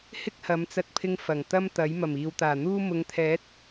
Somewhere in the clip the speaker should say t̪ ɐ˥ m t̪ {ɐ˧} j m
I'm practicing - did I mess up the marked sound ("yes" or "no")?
yes